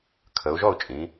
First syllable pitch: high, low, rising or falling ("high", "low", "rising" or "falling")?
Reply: rising